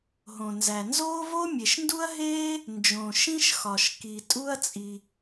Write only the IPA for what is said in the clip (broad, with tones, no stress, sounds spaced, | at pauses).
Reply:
ɦ õ˩ n z æ˩ n z oː˥ v o˥ mʲ e˩ ʃ n d u˥ ɐ̯ ɦ eː˥ | n d͡ʒ õ˩ ʃ ĩ˥ ʃ x ɒ˩ ʃ k i˩ tʼ u˥ ɐ̯ t͡sʼ i˩